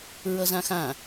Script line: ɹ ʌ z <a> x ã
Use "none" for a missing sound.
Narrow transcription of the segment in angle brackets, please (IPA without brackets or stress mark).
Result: ã